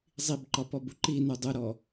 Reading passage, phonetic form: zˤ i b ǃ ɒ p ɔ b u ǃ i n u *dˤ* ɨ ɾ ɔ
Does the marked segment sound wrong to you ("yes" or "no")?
no